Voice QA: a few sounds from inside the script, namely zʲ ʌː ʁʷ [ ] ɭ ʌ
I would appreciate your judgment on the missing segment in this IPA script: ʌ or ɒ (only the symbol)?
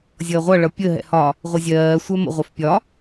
ʌ